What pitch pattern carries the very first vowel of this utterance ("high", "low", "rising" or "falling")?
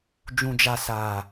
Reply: low